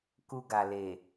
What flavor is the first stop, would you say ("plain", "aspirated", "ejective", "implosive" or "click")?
plain